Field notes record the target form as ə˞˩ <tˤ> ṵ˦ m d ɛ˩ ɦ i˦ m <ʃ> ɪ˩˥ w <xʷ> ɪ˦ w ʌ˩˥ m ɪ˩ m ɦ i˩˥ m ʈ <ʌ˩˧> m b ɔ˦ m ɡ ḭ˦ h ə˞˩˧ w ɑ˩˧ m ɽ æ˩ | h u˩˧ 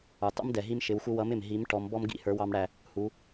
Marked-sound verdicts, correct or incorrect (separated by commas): correct, correct, correct, incorrect